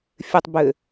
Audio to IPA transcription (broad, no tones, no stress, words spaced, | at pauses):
fʲɘtˤ bɘ